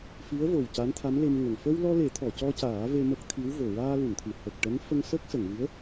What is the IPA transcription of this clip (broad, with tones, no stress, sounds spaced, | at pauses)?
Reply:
f i˧˥ ə̯ v o˨˩ w c a˧˥ n t̪ʰ a˧˥ m l e˧ m ŋ ə˨˩ ŋ f ə˧ w l ɔ˧ l e˨˩˦ t̪ʰ ɔ˨˩˨ c ɔ˧ c aː˨˩˦ v e˧ m ə˦˥ k̚ t̪ʰ i˧˥ w v o˨˩ ɹ aː˧ l u˨˩˨ n t̪ʰ ɨ˨˩˨ h ə˨˩ k̚ ʈ ɛ˧˥ n f ə˧ ŋ s ə˦˥ k̚ s ə˨˩˨ ŋ v ɨ˧˥ ə̯